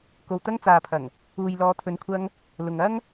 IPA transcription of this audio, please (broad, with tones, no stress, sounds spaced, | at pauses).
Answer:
k o˨ w t̪ ɐ˧ ŋ t͡s aː˨ pʰ ɐ˨˩ ŋ | uː˨ j l ɔː˨˧ t̪ʰ ɵ˨˧ n kʷʰ ɐ˧ ŋ | l ʊ˨ ŋ ɐ˥ ŋ